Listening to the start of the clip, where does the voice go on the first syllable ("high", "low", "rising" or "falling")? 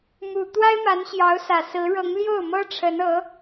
low